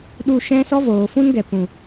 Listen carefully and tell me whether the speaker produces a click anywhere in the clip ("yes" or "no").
no